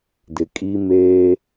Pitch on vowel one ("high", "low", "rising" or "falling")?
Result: low